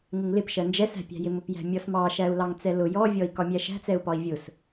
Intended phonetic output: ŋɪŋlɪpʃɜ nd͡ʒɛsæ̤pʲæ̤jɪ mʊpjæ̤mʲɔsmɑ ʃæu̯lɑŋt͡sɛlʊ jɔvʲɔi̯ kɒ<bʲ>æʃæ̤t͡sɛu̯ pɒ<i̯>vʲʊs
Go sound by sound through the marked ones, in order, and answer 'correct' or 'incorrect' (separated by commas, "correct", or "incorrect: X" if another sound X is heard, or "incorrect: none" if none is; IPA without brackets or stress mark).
incorrect: mʲ, correct